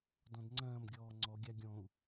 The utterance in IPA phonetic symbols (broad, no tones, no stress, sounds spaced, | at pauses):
d ɔ̃ d ŋ͡ǀ ɐ̃ː m ɡʲ ɔː ŋ͡ǀ ɔ ɡʲ a ɡʲ ɔ̃ u̯